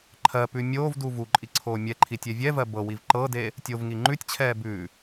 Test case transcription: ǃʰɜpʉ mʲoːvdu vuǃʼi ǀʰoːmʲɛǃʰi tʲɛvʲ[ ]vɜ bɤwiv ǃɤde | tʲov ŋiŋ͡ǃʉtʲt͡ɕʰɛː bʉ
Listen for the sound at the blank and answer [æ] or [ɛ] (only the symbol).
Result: ɛ